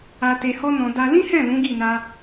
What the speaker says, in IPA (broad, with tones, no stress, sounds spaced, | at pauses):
a˧ t e˧ h ɔ˦ n ɔ̃˧ d a˦ l ĩ˦ h ɛ̃˦˨ l ũ˨˦ ɡ i˦˨ n a˧